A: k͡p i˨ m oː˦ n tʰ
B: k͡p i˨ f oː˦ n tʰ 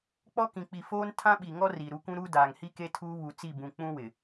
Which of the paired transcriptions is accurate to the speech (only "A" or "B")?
B